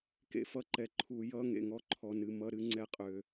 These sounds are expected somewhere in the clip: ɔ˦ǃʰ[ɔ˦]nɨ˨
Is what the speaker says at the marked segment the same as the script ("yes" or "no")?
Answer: no